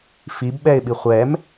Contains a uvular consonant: yes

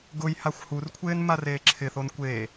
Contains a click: yes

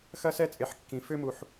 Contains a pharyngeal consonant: yes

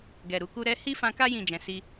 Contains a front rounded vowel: no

